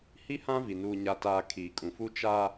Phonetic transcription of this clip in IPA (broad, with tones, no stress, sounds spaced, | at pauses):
h i˦ h ã˦ v i˨ n uː˨ ɲ a˨ t aː˨ kʰ iː˨ kʼ ũ˨ f u˦ t͡ʃ a˦